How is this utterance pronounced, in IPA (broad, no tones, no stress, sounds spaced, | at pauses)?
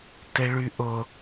t e ɭ y ʔ ʊ